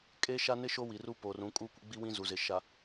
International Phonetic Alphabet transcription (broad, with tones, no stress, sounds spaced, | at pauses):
kʼ e˦ ʃ a˦ n ɪ˦ ʃ o˦ w i˨ r u˦ p o˨ r ũ˨˦ kʼ u˦ kʷ ɪ˦ ɡ͡b i˦ w ĩ˦ z u˨ z ɪ˨ ʃ a˨